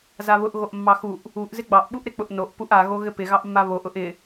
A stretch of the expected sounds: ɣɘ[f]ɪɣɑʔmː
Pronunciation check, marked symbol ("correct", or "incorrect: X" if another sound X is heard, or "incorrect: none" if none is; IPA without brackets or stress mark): incorrect: p